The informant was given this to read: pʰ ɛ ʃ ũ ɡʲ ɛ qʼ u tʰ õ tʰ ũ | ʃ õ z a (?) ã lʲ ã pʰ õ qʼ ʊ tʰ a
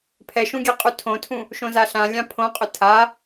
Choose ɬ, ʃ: ɬ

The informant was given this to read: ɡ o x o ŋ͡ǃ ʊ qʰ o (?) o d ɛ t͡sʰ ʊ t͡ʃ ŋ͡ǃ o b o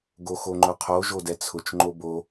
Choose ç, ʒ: ʒ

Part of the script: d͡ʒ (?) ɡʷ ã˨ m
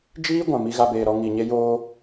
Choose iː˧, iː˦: iː˦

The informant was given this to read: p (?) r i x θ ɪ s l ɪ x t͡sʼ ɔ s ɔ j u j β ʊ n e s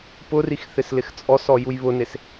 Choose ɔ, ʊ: ʊ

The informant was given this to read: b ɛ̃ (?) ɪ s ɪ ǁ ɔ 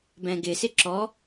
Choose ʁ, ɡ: ɡ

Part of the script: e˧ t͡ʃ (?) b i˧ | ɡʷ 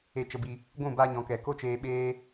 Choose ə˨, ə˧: ə˧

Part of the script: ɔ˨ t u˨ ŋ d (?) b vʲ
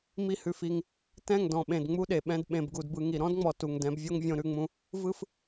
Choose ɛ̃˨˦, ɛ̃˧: ɛ̃˧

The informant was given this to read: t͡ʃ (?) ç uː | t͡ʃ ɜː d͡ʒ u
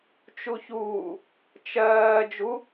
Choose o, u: u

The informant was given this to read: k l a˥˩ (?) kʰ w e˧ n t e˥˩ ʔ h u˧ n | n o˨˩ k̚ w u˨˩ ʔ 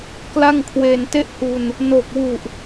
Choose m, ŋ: ŋ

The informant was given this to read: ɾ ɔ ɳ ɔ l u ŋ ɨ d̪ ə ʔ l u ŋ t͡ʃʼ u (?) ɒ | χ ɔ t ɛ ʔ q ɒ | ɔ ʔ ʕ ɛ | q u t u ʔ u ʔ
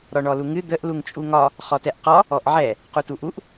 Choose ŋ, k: ŋ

